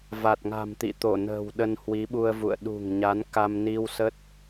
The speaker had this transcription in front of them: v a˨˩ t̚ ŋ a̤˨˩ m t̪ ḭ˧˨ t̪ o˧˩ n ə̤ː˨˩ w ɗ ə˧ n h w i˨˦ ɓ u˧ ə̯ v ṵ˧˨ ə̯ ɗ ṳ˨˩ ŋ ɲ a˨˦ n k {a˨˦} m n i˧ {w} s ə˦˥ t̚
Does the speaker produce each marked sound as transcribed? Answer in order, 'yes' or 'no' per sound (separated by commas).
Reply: no, yes